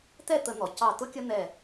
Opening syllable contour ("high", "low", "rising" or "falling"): falling